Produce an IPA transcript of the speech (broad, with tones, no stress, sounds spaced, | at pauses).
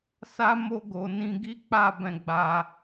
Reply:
s a˦ m o˦ ɡ o˧ n ĩ˦ ɡ i˦ k͡p a˦˨ b ɛ̃˧ ɡ͡b a˧